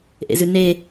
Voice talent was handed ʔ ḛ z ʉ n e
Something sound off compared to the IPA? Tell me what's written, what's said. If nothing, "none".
none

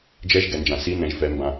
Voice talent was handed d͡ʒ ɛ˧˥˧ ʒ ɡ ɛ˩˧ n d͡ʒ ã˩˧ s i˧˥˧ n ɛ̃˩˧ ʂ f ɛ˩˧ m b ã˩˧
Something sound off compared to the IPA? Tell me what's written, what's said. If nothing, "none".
ʂ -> ʒ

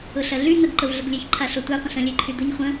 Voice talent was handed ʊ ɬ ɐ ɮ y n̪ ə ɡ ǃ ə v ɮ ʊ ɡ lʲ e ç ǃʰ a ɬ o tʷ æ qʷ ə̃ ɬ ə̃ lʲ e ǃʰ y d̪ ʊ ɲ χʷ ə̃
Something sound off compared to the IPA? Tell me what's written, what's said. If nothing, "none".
none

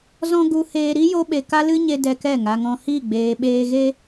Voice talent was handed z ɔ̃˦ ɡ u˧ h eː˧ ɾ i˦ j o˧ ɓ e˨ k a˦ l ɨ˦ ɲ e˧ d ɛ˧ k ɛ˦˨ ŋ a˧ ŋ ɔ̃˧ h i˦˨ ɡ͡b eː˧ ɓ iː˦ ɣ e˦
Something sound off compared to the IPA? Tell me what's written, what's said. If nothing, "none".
iː˦ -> eː˦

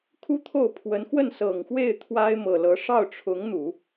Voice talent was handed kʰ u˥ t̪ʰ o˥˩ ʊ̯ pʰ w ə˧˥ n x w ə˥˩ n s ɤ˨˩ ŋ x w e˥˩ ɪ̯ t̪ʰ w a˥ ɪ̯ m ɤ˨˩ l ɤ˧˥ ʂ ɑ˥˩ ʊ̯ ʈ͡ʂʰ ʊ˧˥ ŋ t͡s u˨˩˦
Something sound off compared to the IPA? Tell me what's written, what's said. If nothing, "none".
t͡s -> n̪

